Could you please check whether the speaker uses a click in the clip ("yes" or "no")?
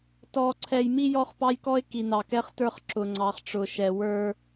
yes